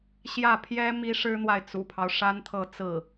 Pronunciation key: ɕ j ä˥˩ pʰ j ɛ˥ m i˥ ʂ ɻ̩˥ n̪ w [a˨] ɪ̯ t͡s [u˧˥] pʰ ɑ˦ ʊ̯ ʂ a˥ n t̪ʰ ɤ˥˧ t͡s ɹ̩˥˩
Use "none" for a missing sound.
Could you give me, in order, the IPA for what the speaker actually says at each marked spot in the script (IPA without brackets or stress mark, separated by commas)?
a˨, ṵ˨˩